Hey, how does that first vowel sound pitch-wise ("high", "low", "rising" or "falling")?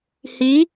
rising